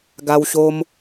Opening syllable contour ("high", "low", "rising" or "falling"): high